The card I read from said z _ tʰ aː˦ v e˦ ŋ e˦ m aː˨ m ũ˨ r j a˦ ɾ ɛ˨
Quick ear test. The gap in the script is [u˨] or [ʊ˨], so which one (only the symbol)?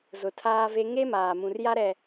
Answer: ʊ˨